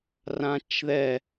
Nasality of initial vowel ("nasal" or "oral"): nasal